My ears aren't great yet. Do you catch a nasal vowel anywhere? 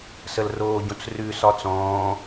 yes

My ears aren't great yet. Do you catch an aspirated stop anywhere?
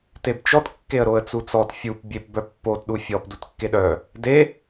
no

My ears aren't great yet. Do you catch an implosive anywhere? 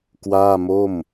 no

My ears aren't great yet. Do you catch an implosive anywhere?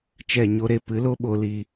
yes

